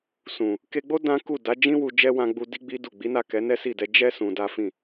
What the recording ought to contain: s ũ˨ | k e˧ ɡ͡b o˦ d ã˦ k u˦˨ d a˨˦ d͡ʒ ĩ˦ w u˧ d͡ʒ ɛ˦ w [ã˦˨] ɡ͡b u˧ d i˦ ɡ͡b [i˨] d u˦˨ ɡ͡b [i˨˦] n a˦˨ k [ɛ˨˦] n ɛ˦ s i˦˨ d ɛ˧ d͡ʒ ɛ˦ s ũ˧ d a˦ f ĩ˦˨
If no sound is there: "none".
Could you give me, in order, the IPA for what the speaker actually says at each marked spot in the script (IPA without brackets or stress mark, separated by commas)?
ã˧, i˦, i˨˦, ɛ˨˦